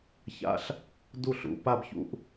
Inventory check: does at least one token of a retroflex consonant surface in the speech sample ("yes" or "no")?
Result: no